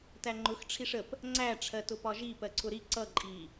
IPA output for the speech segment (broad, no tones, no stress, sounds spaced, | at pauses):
t æ ŋ͡ǃ ʊ x ʈ͡ʂʰ i ʂ ə p | ŋ͡ǀ æ ʈ͡ʂʰ ɜ t ʊ p ɒ ʒ i p ɜ ǀʰ ʊ ɾ i ǀ ʌ ǃʼ i